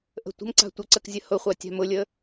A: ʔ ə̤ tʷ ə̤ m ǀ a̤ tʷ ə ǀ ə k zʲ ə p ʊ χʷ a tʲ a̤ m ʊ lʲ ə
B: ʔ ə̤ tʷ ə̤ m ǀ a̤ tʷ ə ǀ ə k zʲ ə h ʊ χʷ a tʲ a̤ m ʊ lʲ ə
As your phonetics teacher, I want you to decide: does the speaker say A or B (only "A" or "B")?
B